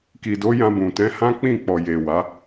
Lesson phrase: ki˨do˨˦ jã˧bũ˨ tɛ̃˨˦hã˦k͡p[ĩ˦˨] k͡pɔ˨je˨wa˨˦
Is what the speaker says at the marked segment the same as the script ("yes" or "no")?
yes